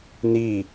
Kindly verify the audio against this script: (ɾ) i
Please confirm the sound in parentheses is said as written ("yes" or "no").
no